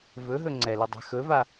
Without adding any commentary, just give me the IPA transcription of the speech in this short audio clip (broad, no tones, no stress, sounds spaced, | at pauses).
v ɵ ɦ ɵ ŋ͡ǀ ɛ l ɵ dˤ a̤ x ɵ v a